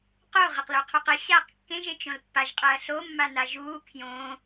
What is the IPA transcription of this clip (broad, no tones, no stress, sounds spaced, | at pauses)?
q o ʁ ɐ q l o qʰ u q ɘ ɕ aː q kː ẽ ʒ e t͡ʃ õ l pː a ʒ qʼ ɐː ɬ o mː a n a ʒ uː kʰ j õ